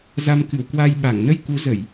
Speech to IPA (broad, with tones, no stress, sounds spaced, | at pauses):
z a˧ m k ɨ˧˩ w k w a˧ j ɓ a˧˩ ŋ n ə˧ j k u˨˦ z ə˧˩˨ j